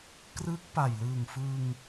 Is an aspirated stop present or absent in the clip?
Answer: absent